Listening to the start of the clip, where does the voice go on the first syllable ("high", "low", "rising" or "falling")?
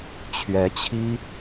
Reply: rising